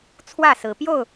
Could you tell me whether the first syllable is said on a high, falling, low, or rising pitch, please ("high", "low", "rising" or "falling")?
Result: falling